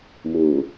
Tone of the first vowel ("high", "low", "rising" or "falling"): low